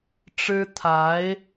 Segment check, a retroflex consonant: present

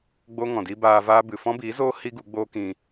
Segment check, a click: absent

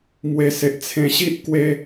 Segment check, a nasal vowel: present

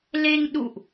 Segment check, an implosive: present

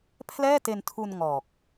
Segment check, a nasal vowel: absent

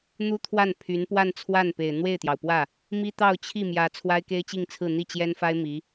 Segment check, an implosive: absent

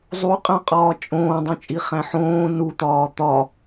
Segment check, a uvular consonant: present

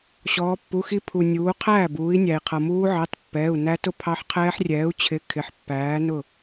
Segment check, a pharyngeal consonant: present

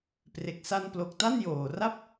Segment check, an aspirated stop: absent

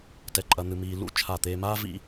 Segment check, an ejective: present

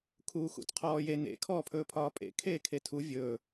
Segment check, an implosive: absent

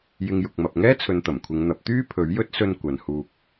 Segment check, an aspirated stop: present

